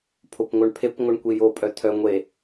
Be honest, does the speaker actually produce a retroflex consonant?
yes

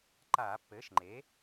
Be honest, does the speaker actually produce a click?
yes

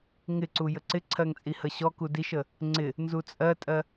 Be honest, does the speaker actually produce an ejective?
yes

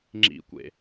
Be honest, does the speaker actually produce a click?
yes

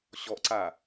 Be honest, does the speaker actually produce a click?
yes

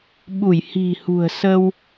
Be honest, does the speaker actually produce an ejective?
no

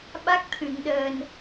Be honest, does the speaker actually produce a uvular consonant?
no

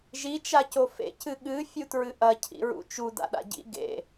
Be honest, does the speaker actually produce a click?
no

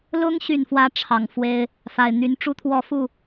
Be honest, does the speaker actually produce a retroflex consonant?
yes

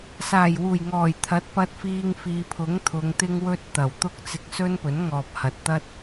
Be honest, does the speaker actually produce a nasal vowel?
no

